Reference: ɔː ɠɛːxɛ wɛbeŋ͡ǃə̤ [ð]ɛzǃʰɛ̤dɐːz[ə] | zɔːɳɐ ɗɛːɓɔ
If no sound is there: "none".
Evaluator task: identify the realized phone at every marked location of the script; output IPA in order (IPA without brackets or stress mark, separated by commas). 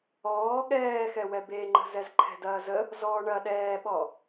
z, ə